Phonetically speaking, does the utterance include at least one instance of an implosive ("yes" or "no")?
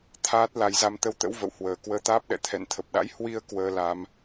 yes